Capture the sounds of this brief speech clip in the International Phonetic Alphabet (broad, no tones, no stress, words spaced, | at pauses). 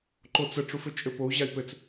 ǃot͡sə ʈ͡ʂufɘt͡ʃʼɘpou̯ ʑai̯pɘt͡s